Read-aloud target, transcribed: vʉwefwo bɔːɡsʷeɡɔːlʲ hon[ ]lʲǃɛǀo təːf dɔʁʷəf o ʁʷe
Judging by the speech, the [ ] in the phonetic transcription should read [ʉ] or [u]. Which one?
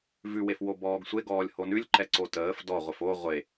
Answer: ʉ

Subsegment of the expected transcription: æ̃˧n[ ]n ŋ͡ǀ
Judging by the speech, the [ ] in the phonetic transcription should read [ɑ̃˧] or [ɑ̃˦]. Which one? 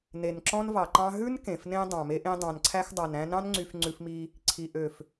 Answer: ɑ̃˦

